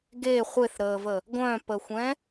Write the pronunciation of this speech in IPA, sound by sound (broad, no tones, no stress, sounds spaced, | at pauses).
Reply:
ɡ e χʷ e θ ɾ əː v ə | ɡʷ œ̃ p ə xʷ ɛ̃